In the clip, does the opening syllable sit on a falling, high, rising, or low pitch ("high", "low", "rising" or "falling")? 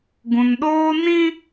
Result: low